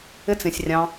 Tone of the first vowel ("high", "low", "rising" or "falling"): high